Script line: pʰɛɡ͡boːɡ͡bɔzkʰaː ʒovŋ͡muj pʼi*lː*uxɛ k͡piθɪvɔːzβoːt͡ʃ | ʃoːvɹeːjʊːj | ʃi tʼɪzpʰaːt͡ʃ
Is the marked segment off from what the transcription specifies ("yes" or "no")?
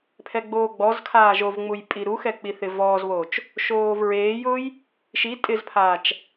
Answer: yes